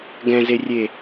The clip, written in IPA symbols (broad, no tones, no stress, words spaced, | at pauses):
ɡɛ̃zerʲe